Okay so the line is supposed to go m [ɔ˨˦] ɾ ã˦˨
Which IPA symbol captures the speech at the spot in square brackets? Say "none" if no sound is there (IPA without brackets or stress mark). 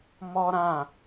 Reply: ɔ˦